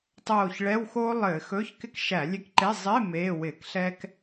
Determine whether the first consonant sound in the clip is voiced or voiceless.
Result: voiceless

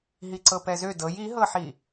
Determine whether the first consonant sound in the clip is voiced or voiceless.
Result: voiced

